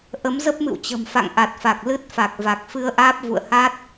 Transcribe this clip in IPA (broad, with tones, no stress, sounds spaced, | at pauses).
ʔ ə˨˦ m z ə˦˥ p̚ m ɨ̰˧˨ w t͡ɕ ə̤˨˩ m f a̰˧˨ ŋ ʔ a˨˩ t̚ f a˨˩ k̚ l ɨ˦˥ t̚ f a˨˩ k̚ v a˨˩ k̚ f ɨ˧ ə̯ ʔ aː˦˥ p̚ v ṵ˧˨ ə̯ h a˦˥ t̚